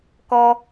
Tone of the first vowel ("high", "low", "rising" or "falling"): high